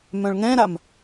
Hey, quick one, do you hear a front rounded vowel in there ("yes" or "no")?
yes